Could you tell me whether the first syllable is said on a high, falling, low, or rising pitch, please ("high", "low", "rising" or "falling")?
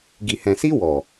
low